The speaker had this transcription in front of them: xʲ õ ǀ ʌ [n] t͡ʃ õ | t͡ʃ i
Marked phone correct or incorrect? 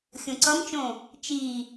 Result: incorrect